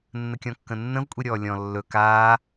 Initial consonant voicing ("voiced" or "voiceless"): voiced